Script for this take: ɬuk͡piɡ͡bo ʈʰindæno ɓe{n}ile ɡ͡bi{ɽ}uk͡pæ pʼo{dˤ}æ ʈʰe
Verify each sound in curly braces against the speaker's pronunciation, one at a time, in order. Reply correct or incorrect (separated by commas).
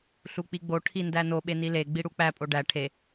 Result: correct, correct, incorrect